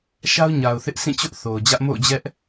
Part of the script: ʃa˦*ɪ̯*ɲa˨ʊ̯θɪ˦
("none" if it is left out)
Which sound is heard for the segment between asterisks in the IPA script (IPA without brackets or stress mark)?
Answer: ʊ̯